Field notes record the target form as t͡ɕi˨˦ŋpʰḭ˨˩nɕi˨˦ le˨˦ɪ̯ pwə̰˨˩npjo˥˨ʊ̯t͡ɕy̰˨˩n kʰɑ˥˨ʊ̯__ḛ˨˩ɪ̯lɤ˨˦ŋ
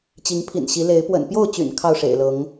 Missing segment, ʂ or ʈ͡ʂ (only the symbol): ʂ